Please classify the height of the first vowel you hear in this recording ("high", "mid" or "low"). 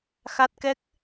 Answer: low